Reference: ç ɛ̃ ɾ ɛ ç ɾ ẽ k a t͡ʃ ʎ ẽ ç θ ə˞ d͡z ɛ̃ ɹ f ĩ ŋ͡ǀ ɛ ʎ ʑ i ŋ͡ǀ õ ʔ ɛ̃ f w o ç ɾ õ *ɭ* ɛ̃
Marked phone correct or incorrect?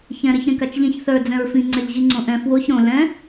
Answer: incorrect